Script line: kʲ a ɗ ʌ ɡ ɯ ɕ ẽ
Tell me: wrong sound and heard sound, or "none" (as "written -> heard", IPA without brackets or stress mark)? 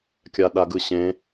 ʌ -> a